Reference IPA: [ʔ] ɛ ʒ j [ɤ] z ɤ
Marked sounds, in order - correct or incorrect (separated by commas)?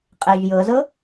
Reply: incorrect, correct